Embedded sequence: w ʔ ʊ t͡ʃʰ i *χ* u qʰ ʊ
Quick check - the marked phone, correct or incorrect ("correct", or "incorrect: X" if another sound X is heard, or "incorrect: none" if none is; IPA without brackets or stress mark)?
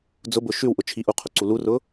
incorrect: ʔ